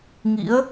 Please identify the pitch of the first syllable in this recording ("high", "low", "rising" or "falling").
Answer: rising